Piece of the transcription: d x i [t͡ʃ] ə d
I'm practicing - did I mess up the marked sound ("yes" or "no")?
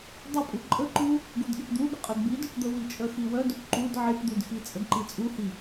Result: yes